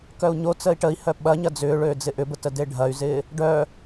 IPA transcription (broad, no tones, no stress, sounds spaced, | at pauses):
k œ u̯ ɲ o t͡s əː i̯ ʈ ə i̯ h œ ɓ ɐ ɲ ɐ d͡z ʏː ɭ øː d͡z ɪ ʔ ʏ b ə t ə d e ɖʱ ɐ y̯ z ɪː | ɖ œ